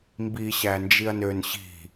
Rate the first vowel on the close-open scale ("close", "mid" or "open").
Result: close